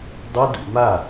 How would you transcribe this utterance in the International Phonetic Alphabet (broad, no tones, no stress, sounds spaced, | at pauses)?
dˤ o d ṵ m a